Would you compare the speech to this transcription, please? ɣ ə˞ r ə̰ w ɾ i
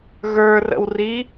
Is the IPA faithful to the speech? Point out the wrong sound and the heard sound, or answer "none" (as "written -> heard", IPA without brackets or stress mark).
ɾ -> r